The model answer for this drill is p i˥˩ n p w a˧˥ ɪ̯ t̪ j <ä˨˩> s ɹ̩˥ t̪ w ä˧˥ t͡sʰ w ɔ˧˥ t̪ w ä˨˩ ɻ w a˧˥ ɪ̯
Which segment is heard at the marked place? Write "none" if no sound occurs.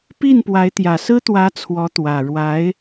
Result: ä˨˩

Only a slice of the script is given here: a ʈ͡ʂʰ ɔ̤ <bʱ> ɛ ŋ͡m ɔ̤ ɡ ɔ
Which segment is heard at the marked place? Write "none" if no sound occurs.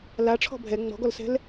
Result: bʱ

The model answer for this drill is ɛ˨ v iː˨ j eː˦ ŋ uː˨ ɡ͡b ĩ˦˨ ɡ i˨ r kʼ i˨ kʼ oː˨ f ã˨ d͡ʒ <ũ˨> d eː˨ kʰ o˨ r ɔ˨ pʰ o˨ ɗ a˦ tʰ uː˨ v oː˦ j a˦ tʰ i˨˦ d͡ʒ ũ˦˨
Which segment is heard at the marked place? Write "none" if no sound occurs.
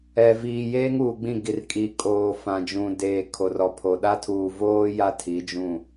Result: ũ˨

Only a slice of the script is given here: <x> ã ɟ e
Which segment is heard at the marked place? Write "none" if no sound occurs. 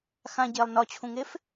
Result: x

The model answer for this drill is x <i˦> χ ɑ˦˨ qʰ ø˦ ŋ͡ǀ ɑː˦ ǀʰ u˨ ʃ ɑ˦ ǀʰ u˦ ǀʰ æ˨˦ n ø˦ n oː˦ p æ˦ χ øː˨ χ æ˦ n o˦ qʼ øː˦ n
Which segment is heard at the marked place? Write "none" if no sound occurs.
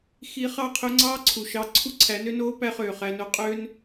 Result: i˦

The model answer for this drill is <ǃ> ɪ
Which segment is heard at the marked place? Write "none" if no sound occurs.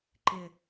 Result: ǃ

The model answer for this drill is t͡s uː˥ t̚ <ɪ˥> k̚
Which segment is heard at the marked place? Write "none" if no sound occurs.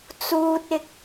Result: ɪ˥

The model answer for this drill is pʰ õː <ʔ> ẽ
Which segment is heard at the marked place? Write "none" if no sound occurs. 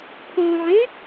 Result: ʕ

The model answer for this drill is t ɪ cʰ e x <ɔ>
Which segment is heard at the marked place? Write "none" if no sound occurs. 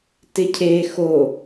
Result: o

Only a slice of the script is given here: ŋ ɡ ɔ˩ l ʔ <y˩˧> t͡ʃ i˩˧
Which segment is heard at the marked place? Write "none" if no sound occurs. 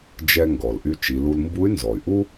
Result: y˧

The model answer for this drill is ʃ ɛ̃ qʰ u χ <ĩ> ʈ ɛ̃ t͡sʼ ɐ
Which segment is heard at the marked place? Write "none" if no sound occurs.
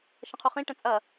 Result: ĩ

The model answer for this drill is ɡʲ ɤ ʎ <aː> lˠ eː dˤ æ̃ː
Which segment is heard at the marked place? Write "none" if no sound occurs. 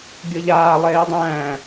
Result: aː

